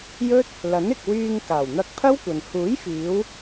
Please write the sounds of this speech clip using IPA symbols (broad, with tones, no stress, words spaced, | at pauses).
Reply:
jɵ˥t̚ | lɐ˨˥nɪ˨k̚ wyː˧ŋ kaː˨˩wn̪ɐ˧k̚pʰɐ˥wkʷɐ˨n huː˨˥jfiː˨˧w